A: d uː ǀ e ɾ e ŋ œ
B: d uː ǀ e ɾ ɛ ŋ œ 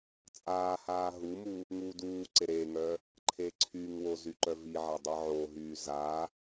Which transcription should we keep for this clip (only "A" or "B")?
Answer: A